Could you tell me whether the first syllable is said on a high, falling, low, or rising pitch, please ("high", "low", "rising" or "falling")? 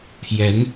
rising